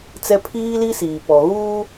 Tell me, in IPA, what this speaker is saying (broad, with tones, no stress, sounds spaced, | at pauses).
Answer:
t͡s ɛ˦ pʰ iː˦ l i˦ s iː˨ p ɔ˨ ɣ uː˦